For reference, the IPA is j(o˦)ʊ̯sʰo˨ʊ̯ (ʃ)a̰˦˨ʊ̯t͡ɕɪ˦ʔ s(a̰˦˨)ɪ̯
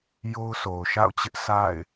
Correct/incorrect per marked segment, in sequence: correct, correct, correct

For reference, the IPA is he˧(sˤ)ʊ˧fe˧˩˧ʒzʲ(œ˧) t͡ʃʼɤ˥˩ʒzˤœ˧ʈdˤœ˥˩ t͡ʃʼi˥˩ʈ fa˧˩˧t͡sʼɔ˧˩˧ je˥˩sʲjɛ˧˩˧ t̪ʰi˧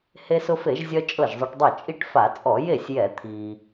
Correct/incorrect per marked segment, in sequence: incorrect: s, correct

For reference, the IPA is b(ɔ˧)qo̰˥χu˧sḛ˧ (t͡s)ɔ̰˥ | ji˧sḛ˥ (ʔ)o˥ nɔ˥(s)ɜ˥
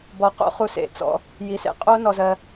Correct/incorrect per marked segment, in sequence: correct, correct, incorrect: qʼ, incorrect: z

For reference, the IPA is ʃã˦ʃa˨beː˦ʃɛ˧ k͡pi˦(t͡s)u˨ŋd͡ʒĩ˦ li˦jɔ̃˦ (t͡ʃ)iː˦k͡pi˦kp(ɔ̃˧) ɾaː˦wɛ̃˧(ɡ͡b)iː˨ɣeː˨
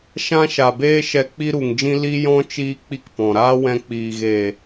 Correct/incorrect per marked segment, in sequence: incorrect: ɾ, correct, incorrect: ɔ̃˨, incorrect: k͡p

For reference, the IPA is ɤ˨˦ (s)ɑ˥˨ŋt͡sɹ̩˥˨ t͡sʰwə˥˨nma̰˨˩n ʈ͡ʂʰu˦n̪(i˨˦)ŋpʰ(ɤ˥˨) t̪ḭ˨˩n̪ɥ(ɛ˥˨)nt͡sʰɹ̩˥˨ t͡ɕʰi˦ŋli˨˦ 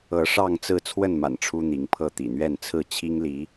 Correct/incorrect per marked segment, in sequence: incorrect: ʂ, correct, correct, correct

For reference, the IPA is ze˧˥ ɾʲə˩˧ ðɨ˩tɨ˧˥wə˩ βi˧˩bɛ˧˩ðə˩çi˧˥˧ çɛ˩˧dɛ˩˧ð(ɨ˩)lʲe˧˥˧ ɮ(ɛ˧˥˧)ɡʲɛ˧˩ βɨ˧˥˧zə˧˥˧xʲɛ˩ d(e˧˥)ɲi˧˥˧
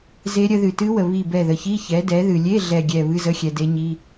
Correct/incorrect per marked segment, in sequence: correct, incorrect: ɛ˧˩, correct

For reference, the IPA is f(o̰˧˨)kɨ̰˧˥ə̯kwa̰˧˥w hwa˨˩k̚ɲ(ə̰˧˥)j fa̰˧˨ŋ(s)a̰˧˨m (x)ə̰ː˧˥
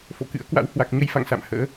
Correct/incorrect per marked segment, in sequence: correct, incorrect: ə˧, correct, incorrect: h

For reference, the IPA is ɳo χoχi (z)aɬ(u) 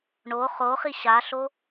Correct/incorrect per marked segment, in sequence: incorrect: ɕ, incorrect: o

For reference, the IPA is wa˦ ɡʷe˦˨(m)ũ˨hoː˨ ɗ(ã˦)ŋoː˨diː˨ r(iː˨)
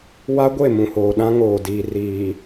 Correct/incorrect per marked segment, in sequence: correct, correct, correct

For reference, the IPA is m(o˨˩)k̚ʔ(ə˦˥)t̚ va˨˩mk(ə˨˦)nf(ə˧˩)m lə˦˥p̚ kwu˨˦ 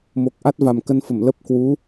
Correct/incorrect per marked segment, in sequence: correct, incorrect: a˦˥, incorrect: ə˧, correct

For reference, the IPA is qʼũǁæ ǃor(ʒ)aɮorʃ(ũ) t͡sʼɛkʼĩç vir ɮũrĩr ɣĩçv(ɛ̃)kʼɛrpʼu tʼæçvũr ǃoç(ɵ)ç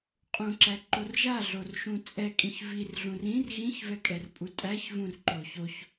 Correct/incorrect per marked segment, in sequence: correct, correct, incorrect: ɛ, incorrect: o

